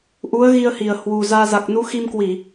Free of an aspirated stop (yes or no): yes